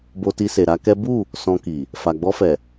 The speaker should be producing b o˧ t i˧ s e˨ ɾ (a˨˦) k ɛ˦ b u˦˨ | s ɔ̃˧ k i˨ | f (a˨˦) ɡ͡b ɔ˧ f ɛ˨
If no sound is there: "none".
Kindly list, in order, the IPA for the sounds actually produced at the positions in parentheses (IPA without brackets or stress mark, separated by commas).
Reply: a˨˦, a˨